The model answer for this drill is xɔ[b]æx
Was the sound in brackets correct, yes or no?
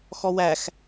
no